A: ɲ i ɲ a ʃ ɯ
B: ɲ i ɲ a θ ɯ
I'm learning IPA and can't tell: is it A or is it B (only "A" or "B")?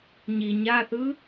B